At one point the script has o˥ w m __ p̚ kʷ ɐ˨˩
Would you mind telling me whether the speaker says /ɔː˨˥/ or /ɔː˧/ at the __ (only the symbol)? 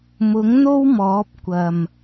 ɔː˨˥